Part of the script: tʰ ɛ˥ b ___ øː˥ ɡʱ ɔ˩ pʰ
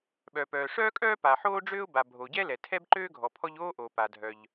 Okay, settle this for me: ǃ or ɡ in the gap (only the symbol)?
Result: ǃ